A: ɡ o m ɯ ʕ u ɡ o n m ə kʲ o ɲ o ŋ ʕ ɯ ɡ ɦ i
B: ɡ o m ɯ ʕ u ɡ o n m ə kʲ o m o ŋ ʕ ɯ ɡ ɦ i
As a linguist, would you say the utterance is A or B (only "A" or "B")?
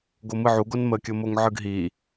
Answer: B